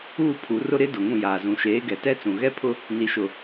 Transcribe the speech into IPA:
uː˦˨pʰu˨˦rʊ˦ ɾɪ˦ dʊ˨ŋũ˦˨jaː˨zũ˨ ʃeː˨˦ ɡɛ˨tɛ˦t͡sũ˨ ɣɛ˦pʰʊ˦ | ni˨ʃʊ˨

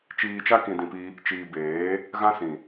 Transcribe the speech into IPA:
t͡ʃiː˧t͡ʃa˦ kĩ˧dĩ˧pi˦ | t͡ʃiː˧ beː˨˦ | ɣã˦sĩ˨

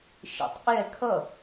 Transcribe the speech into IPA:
ʃḛtˤʔɛ kʰʌ

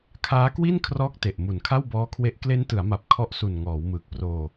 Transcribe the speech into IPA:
kʰaː˦˥kwi˥˩n kʰrɔː˦˥k̚ te˨˩ʔ mu˨˩nkʰa˥˩wbɔː˦˥kʰwe˦˥ʔ kle˦˥ntɯ˩˦a̯ma˨˩p̚ kʰɔ˦˥ʔsu˨˩n ŋɔː˩˦wmɯː˨˩k̚proː˧

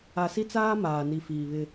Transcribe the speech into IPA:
a˨si˦t͡saː˦ maː˨ni˨fiː˨βɪ˦

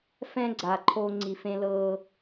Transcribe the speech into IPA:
fɛ̃˧ɡ͡ǀa˨ ǃʰo˦ŋ͡ǀi˧fẽ˦ lɤ˧

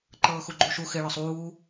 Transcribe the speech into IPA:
ǃɤːxuɡ͡ǃuʃu xɪ ɭɒsˤuː

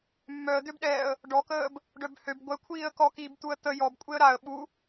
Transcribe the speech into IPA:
mːœə̯d̪øbɗɛːə̯ | ɖɔkəːb | ɖœbhøb ɡʷɛkʷʰiːə̯ kɔkiːb t̪uə̯t̪ə jɔb kʷʼeə̯ɾaə̯ ɓu

